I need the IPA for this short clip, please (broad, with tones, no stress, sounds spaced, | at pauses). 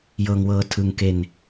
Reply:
j ɤː˧ ŋ w ɤː˧ tʰ ɯ˧ ŋ k e˧ n